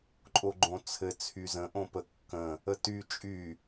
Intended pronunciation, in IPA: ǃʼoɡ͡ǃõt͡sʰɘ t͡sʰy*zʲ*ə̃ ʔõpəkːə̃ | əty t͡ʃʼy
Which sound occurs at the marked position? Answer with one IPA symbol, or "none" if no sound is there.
z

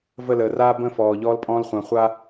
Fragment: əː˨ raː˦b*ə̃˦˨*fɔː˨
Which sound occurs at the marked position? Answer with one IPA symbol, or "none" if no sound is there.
ə̃˦˨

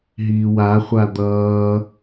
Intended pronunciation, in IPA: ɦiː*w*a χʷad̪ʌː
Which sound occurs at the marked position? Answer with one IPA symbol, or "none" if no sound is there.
w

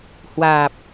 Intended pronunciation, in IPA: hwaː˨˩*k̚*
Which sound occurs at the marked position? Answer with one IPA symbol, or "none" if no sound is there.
p̚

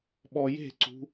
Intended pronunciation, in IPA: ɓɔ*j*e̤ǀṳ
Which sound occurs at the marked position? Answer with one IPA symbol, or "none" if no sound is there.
j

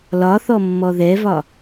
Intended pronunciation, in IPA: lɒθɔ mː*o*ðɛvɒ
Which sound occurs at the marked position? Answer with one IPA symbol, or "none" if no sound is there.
ɔ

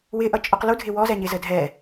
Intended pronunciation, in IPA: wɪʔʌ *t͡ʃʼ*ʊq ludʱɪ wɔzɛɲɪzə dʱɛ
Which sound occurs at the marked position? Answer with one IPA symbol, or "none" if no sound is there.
t͡ʃʼ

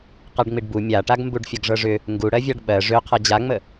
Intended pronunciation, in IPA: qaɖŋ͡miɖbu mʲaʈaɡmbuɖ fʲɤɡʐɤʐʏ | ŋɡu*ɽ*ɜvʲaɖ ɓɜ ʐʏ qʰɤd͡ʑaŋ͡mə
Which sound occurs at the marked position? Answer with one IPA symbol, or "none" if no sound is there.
ɽ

